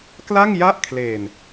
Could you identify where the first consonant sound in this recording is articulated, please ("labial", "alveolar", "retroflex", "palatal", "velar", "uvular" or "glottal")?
velar